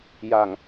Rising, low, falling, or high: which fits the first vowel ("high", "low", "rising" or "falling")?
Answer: low